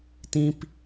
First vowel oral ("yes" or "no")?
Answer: no